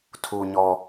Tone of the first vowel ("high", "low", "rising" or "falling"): low